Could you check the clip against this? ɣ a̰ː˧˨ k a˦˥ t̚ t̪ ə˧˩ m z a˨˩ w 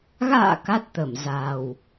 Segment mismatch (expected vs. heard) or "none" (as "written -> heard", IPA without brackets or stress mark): none